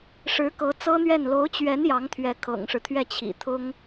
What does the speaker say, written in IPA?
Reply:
ʂɻ̩˧˥ kɤ˧˥t͡sɤ˥n̪ɥɛ˥˩n lo˧˥ʊ̯t͡ɕɥɛ˧˥n jɑ˧˥ŋt̪ʰɥɛ˧˥ kʰɤ̰˨˩ŋʂɻ̩˦t̪ʰɥɛ˥˩ t͡ɕʰḭ˨˩t̪ʰʊ˥ŋ

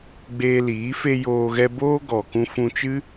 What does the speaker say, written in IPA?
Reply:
ɡ͡beː˧liː˨˦ fe˦joː˧ɣɛ˦ boː˦ɡɔ˨ kũ˧fũ˧t͡ʃɨ˦

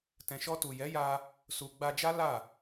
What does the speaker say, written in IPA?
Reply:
tɛ̃˨ʃɔ˧tu˨ jɛ˨˦ja˧ | su˨ɡ͡ba˧d͡ʒa˦ la˦˨

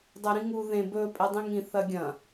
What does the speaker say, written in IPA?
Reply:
dˤɵɾĩŋu ðẽ bɵ pʼedˤĩŋĩ θɐɡʲɐ̃

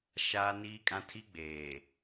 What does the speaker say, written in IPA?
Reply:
ʃaː˦niː˦kʼã˦ tʰi˦ɡ͡beː˨

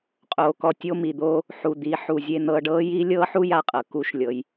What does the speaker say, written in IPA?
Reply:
qʼoː˩kɔ˧ tʲo˧mi˩d̪oː˧ | ħu˩d̪i˩˧ ħu˩zʲe˧n̪ɤ˧ɖɤː˥ ji˥ lʲɤː˥ħu˥ja˧qʼɤ˩ ku˧˥ʃlʲɤ˩˧j

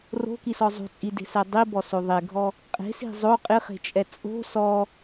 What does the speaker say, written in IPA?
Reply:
ro̤kisɔ zˤo̤t͡sʼide̤sɛ dˤibɔso ðˤeɡʱɔ | qʼe̤si̤ zˤo qʼɪχe̤t͡ʃʼɛ t͡sʼo̤ sɔ

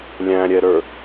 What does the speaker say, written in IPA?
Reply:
lʲæ̃ɾʲɛɾə˞

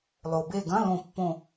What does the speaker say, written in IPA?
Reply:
lˠo˩be˧˩ɡɐ̃˧˥˧ lõ˧˩pːõ˧˩

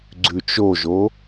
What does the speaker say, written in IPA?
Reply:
ɡ͡ǀʉt͡ʃoʒo

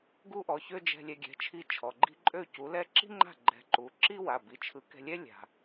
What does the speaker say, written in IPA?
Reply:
ɡu˥ʔɔ˩˧˩çø˥ d͡ʒɛ̤˧lʲɛ˧ɡʲɛ̤˩˧˩ t͡ʃʰi˥˩t͡ʃʰɔ˩˧˩ɡ͡ǃi̤˥ ǃʼø˥˩cu˨˥lɛ˥ ǁi̤˥ŋ͡ǃa̤˥˩ ɡ͡ǃɛ̤˧ǃu˨˥ ǁi˥wa˩˧˩ bi˩˧˩t͡ʃʰɯ˨˥kɛ̤˧lʲɛ˥ lʲa̤˧

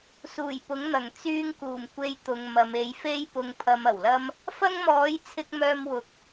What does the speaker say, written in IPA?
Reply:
suː˨˩jpʊ˨˥ŋn̪ɐ˨˩ŋ t͡syː˧ŋkuː˨˩m kʷe˧j t̪ʊ˨ŋ mɐ˨˧m e˨˧jfe˥j pʊ˧ŋpʰɐ˧mɐ˨˩wlɐ˥m | fɐ˥ŋmɔː˨˥jt͡sʰɪ˧k̚ mœː˧mwʊ˨˥k̚

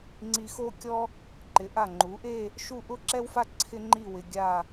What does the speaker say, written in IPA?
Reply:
ŋ͡ǀi˧xo˥˧kʲɔ˥ | ǃɪ˩˧ʔa˧˩ŋ͡ǃu˩˧ʔe˥˧ | ʃu˥˧ ʔʊ˥ǁɛ˥wfa˥ ǀʰɪ˥ŋ͡ǃi˥˧wɪ˧ ɡʲa˥˧

